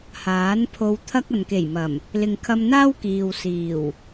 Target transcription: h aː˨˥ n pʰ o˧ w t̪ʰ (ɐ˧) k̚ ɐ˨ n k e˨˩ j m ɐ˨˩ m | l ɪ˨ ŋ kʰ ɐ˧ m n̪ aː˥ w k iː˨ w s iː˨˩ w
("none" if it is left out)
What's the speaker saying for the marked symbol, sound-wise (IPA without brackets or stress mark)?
ɐ˥